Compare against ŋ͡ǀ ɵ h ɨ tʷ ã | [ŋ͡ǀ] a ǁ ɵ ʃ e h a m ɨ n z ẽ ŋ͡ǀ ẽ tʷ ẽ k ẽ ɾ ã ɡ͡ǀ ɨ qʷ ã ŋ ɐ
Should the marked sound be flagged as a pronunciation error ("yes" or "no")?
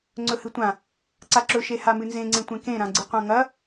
yes